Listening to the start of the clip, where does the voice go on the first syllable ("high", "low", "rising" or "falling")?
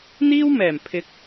high